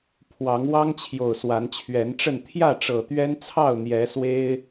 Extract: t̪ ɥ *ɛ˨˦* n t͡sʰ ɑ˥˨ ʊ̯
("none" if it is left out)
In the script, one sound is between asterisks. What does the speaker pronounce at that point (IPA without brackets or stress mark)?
ɛ˦